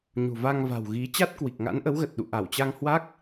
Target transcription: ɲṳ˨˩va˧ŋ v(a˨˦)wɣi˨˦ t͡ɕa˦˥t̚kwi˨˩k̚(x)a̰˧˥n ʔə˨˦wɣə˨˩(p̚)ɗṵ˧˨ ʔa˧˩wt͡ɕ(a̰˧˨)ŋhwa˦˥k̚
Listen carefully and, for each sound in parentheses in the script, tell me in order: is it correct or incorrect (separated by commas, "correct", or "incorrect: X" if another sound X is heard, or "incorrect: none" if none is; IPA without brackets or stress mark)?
incorrect: a̤˨˩, incorrect: ŋ, incorrect: t̚, incorrect: a˧